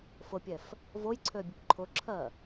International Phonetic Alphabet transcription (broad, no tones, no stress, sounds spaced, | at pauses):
f ʊ pʲ ɛ f | v o j ǀʰ ø bʲ ʊ p ǃʰ ʊ ǁʰ ɜ